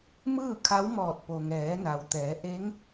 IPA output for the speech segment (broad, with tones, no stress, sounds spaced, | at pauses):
m ɯː˥˨ kʰ a˧˥ w m ɔː˧˩ t̚ p o˩ ŋ ɛː˩˧ n a˩ w t̪ ɛː˩˧ ʔ e˧˥ ŋ